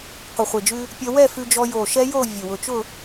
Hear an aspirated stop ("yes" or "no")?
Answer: no